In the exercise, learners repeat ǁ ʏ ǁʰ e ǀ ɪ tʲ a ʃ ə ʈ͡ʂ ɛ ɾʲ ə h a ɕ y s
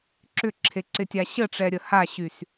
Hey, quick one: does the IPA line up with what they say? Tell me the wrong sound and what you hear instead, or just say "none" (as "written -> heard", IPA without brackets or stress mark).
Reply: ʃ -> ɕ